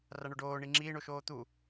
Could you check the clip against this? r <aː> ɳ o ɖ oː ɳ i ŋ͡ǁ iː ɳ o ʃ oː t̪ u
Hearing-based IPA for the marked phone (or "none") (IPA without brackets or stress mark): a